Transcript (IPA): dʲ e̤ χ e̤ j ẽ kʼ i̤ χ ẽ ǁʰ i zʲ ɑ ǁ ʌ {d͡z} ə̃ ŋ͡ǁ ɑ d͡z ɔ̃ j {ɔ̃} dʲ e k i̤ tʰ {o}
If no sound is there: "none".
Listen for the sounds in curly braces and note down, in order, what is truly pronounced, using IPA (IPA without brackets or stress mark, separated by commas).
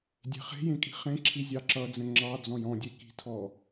d͡z, ɔ̃, ɔ